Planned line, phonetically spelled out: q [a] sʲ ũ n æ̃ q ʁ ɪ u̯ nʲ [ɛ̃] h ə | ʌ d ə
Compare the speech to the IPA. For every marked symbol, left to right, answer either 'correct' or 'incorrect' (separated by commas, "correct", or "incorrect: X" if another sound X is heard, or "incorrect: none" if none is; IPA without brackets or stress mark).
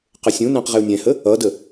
incorrect: ə, correct